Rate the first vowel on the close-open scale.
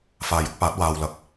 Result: open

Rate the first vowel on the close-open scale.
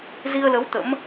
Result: close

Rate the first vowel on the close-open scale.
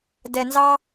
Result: mid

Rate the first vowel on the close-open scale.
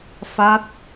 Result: open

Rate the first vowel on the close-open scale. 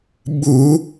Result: close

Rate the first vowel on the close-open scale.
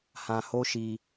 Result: open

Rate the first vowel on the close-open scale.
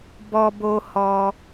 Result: mid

